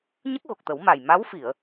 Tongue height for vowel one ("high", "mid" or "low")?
mid